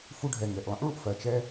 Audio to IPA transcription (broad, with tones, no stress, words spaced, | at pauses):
fu˧ɖʱɛ˩ŋe˩ʔ lˠə̃˥ʔɭu˩ʔfɜ˩ t͡ʃɛ˧